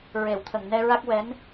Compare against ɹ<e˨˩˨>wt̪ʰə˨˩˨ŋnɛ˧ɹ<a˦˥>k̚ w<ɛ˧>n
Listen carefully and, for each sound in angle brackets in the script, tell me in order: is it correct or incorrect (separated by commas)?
correct, correct, incorrect